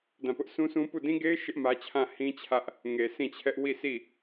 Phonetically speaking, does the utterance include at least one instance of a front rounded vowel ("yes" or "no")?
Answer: no